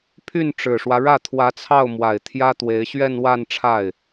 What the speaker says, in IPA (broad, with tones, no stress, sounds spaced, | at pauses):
pʰ y˥˩ n ʈ͡ʂ ɻ̩˨˩ ʂ w ä˦ ɻ ä˥˩ t̪ʰ w ä˧˥ t͡sʰ ɑ˥˩ ʊ̯ m w a˨˩ ɪ̯ t̪ʰ j ä˥ t̪ w e˧˥ ɪ̯ ɕ ɥ ɛ˥˧ n w a˥˧ n ʈ͡ʂʰ a˥˩ ɪ̯